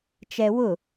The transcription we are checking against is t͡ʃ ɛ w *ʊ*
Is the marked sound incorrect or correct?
correct